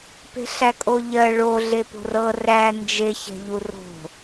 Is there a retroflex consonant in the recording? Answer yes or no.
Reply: yes